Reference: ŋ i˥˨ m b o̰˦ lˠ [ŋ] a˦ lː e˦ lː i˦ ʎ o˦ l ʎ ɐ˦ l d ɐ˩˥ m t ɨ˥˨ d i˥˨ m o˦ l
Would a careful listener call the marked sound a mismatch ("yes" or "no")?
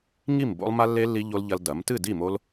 yes